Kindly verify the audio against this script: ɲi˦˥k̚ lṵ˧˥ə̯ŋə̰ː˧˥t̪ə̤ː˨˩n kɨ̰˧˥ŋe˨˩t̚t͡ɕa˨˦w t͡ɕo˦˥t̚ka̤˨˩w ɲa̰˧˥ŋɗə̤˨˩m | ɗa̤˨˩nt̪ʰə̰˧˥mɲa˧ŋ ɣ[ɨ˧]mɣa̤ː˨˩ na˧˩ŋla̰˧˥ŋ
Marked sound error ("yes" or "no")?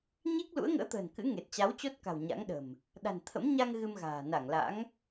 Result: no